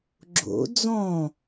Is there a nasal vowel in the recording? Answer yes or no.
yes